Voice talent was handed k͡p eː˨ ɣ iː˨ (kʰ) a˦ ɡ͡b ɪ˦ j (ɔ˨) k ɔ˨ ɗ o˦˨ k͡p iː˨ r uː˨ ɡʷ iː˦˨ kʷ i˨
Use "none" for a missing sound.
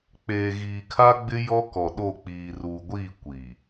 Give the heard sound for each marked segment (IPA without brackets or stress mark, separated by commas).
kʰ, ɔ˦